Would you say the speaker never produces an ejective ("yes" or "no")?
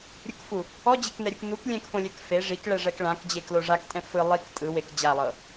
no